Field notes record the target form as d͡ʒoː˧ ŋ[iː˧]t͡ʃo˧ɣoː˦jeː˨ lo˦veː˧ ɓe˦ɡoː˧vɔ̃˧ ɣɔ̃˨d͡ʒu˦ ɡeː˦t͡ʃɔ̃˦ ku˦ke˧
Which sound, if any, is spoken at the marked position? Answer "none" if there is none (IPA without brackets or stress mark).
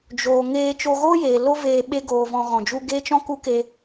eː˧